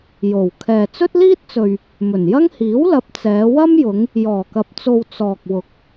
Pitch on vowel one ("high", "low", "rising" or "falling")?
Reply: low